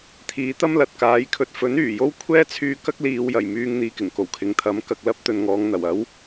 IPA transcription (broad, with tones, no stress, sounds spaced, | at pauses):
t̪ʰ iː˨˥ t̪ ɐ˥ m l ɐ˨ t̚ k aː˨˥ j kʰ ɵ˧ t̚ f ɵ˨˥ n yː˨˩ j o˥ w kʷʰ ɛː˥ t͡sʰ yː˧ k ɐ˥ k̚ l iː˨˧ w j ɐ˨˩ j m yː˧ ŋ n̪ iː˨ k ɪ˨˩ ŋ k o˨˩ w kʰ ɪ˨˧ ŋ t̪ʰ ɐ˨˥ m k ɐ˨ k̚ l ɐ˥ p̚ t̪ ɵ˨ n ŋ ɔː˨˧ ŋ n̪ ɐ˨˩ w ɐ˨˥ w